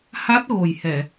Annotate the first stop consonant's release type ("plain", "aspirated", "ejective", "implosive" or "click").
plain